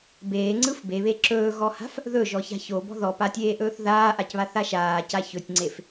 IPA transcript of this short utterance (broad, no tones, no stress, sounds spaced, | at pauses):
b eː ŋ͡ǀ ɯ f b e β e ǁ ɵː ɣ ɔ h a̤ f | ð ɵ ʒ ɔ ç a̤ ç o b ɔ̤ ð ɔ p a tʲ eː ʔ ɵː θ ð aː ʔ a c β a θ a ʃ aː c a ç ɵ tʲ ŋ͡ǀ e f